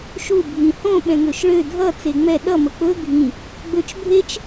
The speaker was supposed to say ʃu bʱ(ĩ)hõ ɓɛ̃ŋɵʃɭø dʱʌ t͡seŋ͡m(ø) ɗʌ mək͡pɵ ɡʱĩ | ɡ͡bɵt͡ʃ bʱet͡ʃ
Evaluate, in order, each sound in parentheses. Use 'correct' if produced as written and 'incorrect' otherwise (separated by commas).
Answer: correct, incorrect